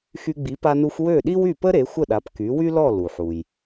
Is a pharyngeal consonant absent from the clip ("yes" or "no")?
no